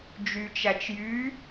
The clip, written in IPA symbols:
d͡ʒ y t͡ʃ æ t͡ʃ j y

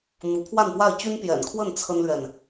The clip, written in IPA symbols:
n̪ u˧˥ pʰ w a˥˧ n p w a˥˩ ɪ̯ t͡ɕ y˥ n p j ɛ̰˨˩ n kʰ w ə˥˩ n t͡sʰ ə˥ n l ɥ ɛ˨ n

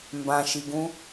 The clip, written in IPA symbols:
m b ã ʃ i ɡ ũ

